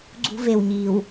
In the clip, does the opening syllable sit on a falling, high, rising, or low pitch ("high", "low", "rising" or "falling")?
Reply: high